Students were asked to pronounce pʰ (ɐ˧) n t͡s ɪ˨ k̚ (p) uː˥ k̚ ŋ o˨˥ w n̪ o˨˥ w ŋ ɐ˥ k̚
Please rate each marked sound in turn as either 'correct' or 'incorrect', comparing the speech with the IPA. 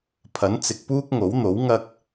incorrect, correct

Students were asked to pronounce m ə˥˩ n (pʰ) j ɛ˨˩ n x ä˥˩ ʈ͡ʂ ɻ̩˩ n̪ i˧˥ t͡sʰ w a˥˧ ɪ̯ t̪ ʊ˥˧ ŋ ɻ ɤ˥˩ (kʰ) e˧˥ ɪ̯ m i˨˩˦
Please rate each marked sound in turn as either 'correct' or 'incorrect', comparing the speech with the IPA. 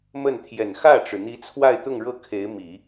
incorrect, correct

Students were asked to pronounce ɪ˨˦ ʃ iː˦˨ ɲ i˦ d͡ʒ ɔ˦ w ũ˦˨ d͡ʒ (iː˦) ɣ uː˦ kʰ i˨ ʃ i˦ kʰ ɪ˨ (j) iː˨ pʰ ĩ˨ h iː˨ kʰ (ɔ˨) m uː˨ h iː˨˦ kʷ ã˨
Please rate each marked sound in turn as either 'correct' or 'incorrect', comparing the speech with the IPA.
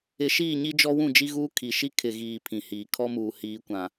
incorrect, incorrect, incorrect

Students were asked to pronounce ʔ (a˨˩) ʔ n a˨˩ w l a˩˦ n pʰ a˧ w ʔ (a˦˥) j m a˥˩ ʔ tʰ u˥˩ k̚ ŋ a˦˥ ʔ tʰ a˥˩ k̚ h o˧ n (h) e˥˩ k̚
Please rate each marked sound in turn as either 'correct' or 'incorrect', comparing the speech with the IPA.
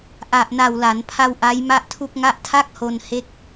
correct, correct, correct

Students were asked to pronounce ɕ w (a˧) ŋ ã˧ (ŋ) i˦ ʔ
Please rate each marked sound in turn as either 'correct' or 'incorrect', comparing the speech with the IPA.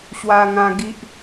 correct, incorrect

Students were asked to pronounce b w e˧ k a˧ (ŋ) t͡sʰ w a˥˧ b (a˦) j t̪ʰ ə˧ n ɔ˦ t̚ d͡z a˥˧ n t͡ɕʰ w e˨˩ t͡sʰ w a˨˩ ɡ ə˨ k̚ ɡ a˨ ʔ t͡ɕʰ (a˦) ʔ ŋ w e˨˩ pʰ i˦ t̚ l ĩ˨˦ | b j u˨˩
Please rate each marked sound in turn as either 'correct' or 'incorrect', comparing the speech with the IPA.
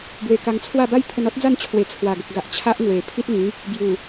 correct, correct, correct

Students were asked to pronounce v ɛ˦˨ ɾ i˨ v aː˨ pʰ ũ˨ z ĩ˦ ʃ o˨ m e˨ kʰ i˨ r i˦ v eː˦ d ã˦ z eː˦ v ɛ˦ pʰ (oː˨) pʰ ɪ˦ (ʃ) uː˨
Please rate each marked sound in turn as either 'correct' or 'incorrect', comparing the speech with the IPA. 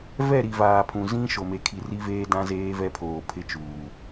correct, incorrect

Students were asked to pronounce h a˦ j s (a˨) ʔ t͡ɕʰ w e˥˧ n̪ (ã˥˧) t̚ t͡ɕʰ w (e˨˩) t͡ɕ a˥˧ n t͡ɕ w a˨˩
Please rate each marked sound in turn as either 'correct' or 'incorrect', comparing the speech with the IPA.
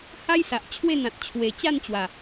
correct, incorrect, correct

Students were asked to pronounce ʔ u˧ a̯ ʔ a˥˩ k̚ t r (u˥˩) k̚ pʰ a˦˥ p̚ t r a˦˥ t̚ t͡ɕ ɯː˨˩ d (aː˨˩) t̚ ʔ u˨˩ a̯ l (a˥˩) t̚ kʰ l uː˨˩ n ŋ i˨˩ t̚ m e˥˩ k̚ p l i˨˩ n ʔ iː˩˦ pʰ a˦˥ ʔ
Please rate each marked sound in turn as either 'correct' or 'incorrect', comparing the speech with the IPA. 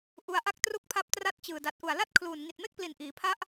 correct, incorrect, correct

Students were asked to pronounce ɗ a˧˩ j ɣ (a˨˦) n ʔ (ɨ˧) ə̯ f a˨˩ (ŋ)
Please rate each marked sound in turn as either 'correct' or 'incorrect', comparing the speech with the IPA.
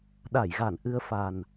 incorrect, correct, incorrect

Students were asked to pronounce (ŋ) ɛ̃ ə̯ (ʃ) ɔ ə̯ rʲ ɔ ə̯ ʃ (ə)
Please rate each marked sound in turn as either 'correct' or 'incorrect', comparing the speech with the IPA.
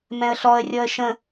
incorrect, incorrect, incorrect

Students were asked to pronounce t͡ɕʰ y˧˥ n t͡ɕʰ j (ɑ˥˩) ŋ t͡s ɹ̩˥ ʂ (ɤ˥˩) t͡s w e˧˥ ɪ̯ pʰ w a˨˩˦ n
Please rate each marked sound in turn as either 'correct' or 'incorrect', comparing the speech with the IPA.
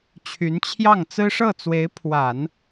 correct, correct

